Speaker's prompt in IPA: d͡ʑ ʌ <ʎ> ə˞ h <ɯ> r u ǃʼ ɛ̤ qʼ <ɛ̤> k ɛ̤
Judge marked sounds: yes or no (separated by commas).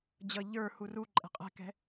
yes, no, yes